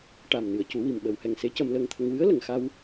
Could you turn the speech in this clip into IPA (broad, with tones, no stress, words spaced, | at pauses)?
ʈa˨˩mnɨ˨˩˨ə̯cu˨˩˦ wi˨˩mɓə˨˩˨whɛ˨˩ŋ se˧˥cə˧mləː˧ŋt̪ʰə˧ŋ wɨ˧˥ə̯lə˨˩ŋxa˧w